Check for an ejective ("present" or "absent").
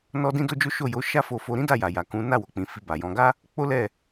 absent